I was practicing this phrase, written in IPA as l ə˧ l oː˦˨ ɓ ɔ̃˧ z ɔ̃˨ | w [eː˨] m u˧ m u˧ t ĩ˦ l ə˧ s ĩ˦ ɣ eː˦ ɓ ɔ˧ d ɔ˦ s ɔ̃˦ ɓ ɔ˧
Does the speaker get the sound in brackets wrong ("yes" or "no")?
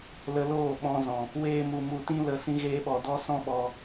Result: yes